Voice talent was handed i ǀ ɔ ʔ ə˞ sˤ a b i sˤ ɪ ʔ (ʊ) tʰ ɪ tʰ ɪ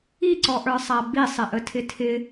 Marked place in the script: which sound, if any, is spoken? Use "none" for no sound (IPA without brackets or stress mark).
ə